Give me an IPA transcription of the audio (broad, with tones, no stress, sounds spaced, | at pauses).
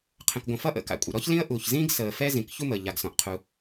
qʰ ə̃˩ k ɡʷ ə̃˩ f ʌ˥ ʔ ə̰˩ k a̰˩ kʷʼ ə̰˩ ɾ ɔ˥ ç l ĩ˥ ə̯ ʔ uː˩ ç z ĩː˥ ɡ s əː˩ f ɛ˥ z ĩ˩ k ç u˥ m əː˩ ʎ a˩ ɡ s ɔ̃˩ ʔ qʰ u˩